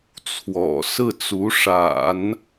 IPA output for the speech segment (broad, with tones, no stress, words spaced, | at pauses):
t͡sʰwɔ̰˨˩sɹ̩˥˩ t͡su˧˥ʂa̰˨˩˦n